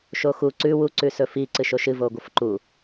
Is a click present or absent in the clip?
present